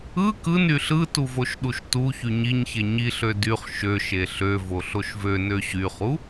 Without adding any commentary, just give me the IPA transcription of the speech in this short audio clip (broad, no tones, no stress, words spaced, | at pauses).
ɯ kɯn yɬɯtu voʃɗuʃtuçy ɲiɲçe ɲiɬø dyχ ʃøʃe ɬøvo ɬoʃvønø ɕyχu